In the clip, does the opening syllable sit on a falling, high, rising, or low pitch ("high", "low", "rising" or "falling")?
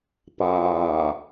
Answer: low